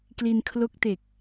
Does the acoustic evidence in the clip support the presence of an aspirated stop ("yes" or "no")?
yes